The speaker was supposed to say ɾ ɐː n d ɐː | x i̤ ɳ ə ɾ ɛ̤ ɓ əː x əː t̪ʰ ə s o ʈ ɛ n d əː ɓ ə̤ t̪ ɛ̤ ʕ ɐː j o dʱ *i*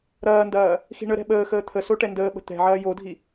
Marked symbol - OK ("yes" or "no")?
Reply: yes